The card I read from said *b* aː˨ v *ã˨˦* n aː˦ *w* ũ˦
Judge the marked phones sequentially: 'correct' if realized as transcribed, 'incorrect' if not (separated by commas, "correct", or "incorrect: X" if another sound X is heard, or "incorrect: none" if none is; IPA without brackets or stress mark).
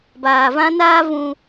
correct, incorrect: ã˦, incorrect: v